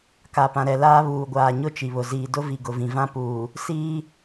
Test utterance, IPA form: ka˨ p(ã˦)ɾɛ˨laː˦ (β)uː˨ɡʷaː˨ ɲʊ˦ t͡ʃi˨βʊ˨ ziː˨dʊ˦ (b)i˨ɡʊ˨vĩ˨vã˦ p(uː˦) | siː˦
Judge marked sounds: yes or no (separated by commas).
no, yes, no, no